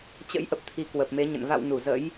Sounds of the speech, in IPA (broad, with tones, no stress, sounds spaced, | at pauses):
t͡ɕ ə̰˧˥ j ʔ ə˨˩ p̚ t̪ʰ i˨˦ k w ə˨˩ p̚ m e˨˦ ɲ ə̰˧˨ n v a̰˧˨ w n u˧˩ z ə̰˧˥ j